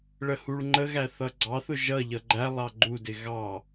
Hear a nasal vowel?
no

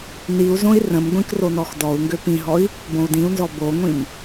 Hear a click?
no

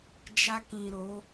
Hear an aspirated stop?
no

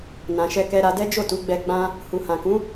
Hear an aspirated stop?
no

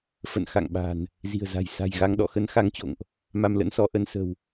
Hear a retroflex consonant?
no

